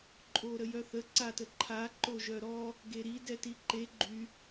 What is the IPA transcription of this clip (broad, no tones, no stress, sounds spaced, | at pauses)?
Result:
ǃʼ o ɾ ə j œ θ ə ǀ a t ə ǃʰ a ǃ o ʒ œ ɾ ɔ | ɡ e ɾ i d ɛ t i ǃ e ɡ͡ǃ y